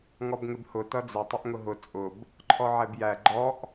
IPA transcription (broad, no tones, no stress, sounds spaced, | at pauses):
ŋ ɔ b ŋ ɪ b h ʊ t ʌ d͡z ʊ tˤ ʊ ʔ ŋ ʊ ɦ ʊ t͡sʼ ʊ b | ǃʰ ɔ ʕ ɛ b j æ ɡ͡ǃ ɔ ʔ